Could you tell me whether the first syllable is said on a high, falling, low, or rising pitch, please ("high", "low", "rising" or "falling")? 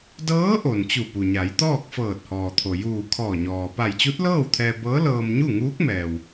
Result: rising